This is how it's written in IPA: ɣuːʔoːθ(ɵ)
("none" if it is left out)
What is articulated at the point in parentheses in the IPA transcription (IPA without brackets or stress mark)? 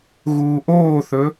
ɵ